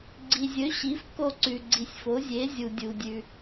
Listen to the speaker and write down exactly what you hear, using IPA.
ɡ͡ǀ i˩ zʲ ɵ˩˥ ɕ i˩˥ f k o˦˨ ǀ ʉ˩ ɡ͡ǀ i˩ sʲ f o˩˥ zʲ e˩˥ zʲ u˩ dʲ u˩ dʲ ʉ˩

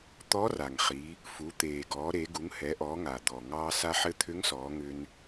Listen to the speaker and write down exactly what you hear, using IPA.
t̪ ɔ˧˥ r a˩ ŋ χ i˩˧ | f u˩˧ t̪ eː˩ ɡ ɔː˩˧ ɾ e˩˧ ɡ u˩˧ ŋ h ɛ˩˧ ʔ ɔː˩˧ ŋ a˩ d̪ ɔ˩ ŋ ɑː˧ s a˧ ħ ɘ˧˥ t̪ʰ ʏ˧˥ ŋ s ɔː˩˧ ŋ ʏ˧ n

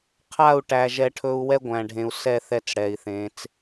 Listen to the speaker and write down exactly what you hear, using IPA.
qʰ a˦˨ u̯ ʈ æ˨ ʒ ɛ˦ ʈʰ ɵ˦ u̯ w ɛ˦ ɡʷ æ̃˨ ɖʱ ẽ˨ u̯ s ɛ˦˨ θ ɛ˦ t͡s ɽ ɛ˨ i̯ θ ẽ˨˦ t͡s

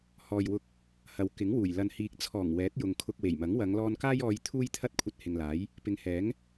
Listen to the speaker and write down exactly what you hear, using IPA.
h ɔː˨ j w ʊ˧ k̚ | h ɐ˨ w k ɪ˨˥ ŋ w uː˨˩ j l ɐ˨ n h iː˨ k̚ t͡sʰ ɔː˨˩ ŋ w ɛː˨˥ t̚ j ʊ˨ ŋ kʰ ʊ˧ k̚ w e˨˩ j m ɐ˨˥ ŋ w ɐ˨˧ ŋ l ɔː˧ n k aː˥ j ɔː˧ j t̪ʰ uː˥ j t̪ʰ ɐ˥ t̚ kʷʰ ɐ˧ t̚ h ɪ˨ ŋ l aː˨˥ j | p ɪ˨˧ ŋ h ɛː˨˥ ŋ

